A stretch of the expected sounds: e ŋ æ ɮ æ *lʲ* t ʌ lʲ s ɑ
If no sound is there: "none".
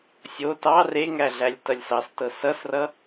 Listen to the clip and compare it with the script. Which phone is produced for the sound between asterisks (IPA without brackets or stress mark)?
lʲ